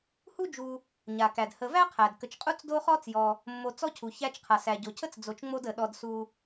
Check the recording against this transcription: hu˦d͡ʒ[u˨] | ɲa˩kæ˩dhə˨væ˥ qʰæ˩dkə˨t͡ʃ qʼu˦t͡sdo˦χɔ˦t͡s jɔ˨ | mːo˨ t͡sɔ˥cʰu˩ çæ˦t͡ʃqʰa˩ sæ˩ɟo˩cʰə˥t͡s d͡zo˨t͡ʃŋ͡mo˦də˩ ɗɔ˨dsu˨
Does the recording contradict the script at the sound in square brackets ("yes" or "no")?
no